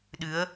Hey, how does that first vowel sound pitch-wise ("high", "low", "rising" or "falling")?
rising